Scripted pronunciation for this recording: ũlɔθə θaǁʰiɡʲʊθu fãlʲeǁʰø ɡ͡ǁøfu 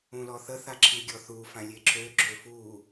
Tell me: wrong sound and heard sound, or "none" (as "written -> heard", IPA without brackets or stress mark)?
ʊ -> ɔ